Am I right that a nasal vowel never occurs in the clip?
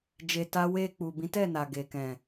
no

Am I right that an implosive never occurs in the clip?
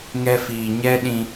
no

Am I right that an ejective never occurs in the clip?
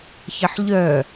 yes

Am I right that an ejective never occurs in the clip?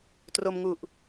yes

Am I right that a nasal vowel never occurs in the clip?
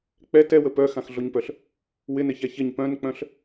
no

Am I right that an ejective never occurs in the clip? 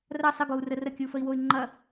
yes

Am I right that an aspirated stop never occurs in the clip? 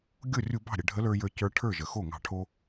no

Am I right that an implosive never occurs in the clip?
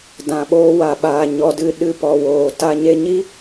no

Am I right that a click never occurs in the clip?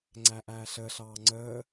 no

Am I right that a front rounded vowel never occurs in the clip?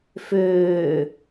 no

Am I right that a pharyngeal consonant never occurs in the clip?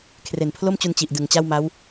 yes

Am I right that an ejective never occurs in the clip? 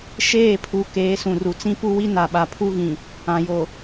yes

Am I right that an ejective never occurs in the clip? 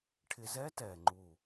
yes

